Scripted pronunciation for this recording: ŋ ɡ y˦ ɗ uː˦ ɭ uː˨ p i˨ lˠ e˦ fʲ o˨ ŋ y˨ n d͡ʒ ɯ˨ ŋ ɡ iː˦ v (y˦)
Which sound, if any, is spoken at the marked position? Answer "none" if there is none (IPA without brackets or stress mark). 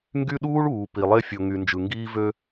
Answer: ø˦